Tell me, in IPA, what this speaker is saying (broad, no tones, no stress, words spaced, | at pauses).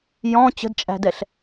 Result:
jɔ̃ t͡ɕə̤dt͡ʃʼæ̤dɛɬ